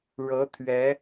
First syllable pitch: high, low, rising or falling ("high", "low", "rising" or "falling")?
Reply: rising